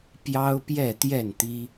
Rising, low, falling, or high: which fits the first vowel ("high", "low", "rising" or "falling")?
high